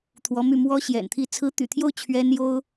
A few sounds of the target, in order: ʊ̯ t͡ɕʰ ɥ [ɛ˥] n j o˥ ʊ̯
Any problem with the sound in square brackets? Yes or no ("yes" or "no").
no